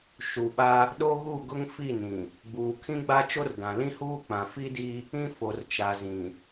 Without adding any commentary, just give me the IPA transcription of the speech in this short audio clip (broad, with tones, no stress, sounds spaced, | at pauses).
ʃ u˨ ɓ a˦ | ɗ o˦ ɣ u˦˨ ɡ ʊ˦ ŋ f i˦˨ n ĩ˨ | ɡ͡b uː˨ kʰ ĩ˦ ɡ͡b a˦ t͡ʃ o˦ r d ã˨ l ĩ˦ h uː˦ k͡p ã˨ f i˦ d i˦ | ĩ˦ f o˨ r t͡ʃ a˨ z ĩ˨